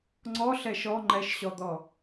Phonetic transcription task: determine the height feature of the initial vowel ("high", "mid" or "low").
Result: mid